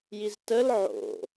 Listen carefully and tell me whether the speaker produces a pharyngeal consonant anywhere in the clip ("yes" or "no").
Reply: yes